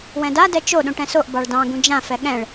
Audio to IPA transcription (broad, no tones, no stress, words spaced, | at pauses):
wɛ̃da dɛt͡ʃo ɗũʈɛ̃soʔ bɑɭdɑ̃ ɡũd͡ʒã fɛɠɛ̃ɭ